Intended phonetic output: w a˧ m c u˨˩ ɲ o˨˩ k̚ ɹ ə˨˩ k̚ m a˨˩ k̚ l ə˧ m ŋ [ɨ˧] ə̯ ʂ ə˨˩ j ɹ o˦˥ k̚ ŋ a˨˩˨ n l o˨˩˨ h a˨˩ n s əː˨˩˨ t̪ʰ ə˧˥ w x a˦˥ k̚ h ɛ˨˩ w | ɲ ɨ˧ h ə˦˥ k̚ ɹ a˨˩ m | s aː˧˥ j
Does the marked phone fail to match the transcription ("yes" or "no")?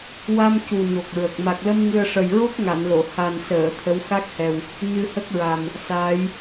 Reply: no